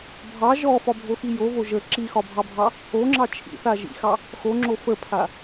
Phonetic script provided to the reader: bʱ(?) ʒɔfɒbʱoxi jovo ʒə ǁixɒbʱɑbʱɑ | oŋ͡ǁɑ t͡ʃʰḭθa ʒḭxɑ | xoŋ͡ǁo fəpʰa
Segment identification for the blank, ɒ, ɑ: ɑ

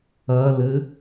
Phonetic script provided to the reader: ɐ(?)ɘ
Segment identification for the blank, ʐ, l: l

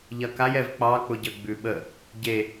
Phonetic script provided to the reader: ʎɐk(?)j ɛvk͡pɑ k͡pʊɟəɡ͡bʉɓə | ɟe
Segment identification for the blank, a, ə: a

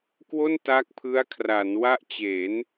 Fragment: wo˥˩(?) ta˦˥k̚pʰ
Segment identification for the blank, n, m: n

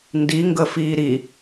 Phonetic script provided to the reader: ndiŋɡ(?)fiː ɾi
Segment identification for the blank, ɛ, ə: ə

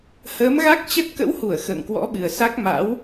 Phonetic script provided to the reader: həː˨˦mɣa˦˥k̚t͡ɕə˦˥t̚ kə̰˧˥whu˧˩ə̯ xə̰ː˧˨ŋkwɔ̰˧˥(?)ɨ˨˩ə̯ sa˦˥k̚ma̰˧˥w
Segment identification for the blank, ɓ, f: ɓ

